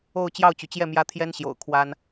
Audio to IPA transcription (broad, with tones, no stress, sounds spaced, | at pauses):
o˥˧ ʊ̯ t͡ɕ j ɑ˥˩ ʊ̯ t͡ɕ y˩ t͡ɕ j ɛ˥˩ m j ä˥ t̪ʰ j ɛ˥ n ɕ j o̰˨˩ ʊ̯ kʰ w a˥ n